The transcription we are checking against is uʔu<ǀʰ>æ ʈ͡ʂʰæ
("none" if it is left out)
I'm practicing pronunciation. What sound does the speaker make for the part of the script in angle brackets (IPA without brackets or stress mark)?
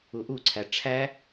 ǀʰ